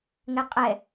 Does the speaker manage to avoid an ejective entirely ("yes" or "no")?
no